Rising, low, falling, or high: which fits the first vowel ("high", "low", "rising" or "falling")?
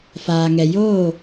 low